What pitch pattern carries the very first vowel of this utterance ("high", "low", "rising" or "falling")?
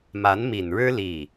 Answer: rising